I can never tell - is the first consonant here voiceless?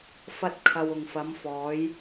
yes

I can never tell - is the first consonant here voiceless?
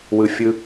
no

